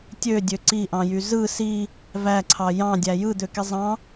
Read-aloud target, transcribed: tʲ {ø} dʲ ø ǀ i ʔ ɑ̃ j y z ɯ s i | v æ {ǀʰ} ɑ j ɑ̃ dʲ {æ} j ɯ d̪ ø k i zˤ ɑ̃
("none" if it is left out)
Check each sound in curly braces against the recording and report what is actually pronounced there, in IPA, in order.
ø, ǀʰ, æ

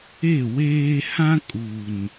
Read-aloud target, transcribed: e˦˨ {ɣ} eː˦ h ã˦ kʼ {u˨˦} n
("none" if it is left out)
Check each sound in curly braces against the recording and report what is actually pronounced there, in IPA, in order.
w, u˨

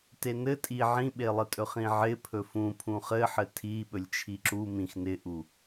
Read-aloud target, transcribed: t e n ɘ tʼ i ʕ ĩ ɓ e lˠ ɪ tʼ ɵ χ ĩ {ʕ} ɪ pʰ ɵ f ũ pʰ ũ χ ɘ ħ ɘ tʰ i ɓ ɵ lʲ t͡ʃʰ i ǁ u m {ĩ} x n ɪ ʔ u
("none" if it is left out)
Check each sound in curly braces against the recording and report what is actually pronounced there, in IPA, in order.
ʕ, ĩ

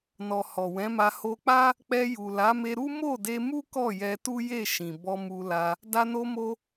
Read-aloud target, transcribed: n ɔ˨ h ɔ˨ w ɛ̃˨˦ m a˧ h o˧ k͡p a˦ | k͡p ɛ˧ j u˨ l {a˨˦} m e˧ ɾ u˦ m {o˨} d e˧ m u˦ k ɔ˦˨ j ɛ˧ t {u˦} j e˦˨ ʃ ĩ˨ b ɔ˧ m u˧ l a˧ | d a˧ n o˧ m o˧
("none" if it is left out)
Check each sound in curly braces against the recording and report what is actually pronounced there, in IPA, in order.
a˨˦, o˦˨, u˦

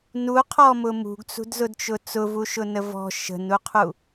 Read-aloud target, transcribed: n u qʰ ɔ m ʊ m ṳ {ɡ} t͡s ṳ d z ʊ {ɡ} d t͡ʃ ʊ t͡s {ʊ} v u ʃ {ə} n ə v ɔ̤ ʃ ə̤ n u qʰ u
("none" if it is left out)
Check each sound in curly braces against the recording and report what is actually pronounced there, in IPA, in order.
ɡ, none, ʊ, ʊ

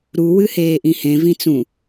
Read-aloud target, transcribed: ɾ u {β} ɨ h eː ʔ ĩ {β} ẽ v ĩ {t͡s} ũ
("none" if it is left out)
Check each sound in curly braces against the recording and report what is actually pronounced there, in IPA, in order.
w, h, t͡s

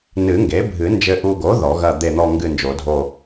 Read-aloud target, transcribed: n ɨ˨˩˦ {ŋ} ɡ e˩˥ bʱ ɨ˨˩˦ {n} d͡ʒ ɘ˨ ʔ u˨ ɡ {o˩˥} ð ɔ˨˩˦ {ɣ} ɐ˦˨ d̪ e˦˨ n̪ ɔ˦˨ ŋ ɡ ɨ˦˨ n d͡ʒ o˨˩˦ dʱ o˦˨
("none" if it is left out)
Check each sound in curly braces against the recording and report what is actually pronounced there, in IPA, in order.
ŋ, n, o˩˥, ɣ

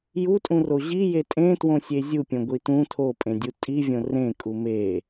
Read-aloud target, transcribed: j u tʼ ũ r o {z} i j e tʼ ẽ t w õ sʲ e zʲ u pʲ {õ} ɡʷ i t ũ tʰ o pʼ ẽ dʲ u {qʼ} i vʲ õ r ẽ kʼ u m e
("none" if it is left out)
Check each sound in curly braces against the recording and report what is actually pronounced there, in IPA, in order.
ʑ, õ, tʼ

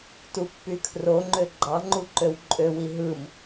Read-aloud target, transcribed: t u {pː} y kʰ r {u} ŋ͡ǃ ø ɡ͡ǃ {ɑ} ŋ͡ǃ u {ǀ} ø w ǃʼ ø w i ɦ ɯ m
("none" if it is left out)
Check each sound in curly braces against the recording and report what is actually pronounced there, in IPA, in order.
pː, o, ɑ, ǃ

